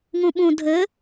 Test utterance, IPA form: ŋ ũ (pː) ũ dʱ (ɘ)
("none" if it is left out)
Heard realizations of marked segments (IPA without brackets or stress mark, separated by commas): ɓ, ɘ